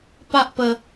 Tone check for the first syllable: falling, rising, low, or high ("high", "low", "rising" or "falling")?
high